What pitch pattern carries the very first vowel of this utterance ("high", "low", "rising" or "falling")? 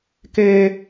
high